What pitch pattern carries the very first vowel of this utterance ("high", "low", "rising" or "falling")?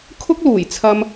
high